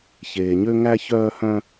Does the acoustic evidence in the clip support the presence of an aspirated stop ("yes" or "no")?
no